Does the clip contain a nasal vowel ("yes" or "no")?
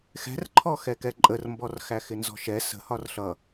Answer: no